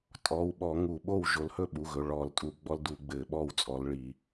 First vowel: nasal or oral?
oral